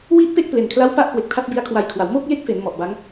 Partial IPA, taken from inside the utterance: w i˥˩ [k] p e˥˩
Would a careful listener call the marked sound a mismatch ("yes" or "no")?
yes